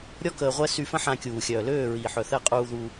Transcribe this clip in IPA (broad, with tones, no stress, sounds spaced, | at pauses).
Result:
ɾʲ ɔ˦ k əː˧ ʁʷ ɛ˦ s y˧ f ə̃˦ ħ ã˧ kʲ uː˨ xʲ œː˨ l øː˦˨ ɹ iː˨ ħ œ˨ θ ɛ˧ qʼ uː˧ ð uː˧